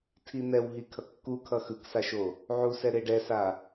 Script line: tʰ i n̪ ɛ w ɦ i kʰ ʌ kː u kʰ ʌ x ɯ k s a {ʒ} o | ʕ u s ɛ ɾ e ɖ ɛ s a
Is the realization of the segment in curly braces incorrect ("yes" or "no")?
yes